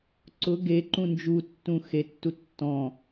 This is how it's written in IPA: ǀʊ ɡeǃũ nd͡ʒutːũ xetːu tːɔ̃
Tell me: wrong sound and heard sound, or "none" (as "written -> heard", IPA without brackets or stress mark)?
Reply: none